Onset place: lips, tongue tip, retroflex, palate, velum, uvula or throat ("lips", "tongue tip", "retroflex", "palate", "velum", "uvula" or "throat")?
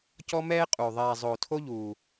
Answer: palate